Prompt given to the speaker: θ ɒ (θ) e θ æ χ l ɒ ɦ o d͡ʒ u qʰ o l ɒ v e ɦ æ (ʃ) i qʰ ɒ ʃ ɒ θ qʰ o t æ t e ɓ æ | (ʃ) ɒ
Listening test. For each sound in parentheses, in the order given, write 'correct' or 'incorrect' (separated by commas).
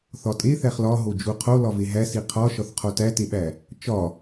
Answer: incorrect, incorrect, incorrect